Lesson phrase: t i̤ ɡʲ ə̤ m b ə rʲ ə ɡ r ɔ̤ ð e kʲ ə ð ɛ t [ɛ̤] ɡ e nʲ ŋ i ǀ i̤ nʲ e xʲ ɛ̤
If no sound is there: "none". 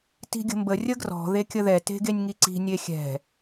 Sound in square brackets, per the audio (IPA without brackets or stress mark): e̤